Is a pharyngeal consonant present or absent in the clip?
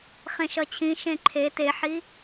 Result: present